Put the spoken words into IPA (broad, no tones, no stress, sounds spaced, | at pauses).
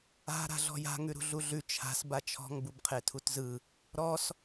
a̤ ɾ a̤ ɮ ɔ̤ j a̤ ŋ ʉ ɾ ṳ ɮ u ɮ ʉ t͡ʃʰ a̤ s b a t͡ʃʰ ɔ̤ ŋ b u b qʰ e tʰ u t z ɯ | ɾ ɔ s